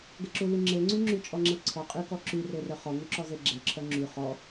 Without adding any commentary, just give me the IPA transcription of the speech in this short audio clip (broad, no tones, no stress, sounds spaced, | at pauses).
ɡ ə ǁ u l y ŋ͡ǁ e ŋ͡ǀ y ŋ͡ǁ y t͡ʃʼ ɔ ŋ͡ǁ e ǀʰ ɔ qʼ y k ɔ ǁ y r e r œ χ ɔ ŋ u ǁ ɔ z e ɡ͡ǁ e ǁʰ œ ŋ͡ǁ y χ ɔ